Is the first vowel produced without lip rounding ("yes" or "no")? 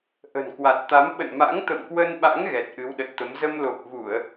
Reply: yes